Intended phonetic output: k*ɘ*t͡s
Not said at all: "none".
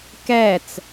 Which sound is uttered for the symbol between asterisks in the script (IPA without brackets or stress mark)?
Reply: ɛ